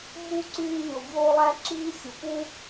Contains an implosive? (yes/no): no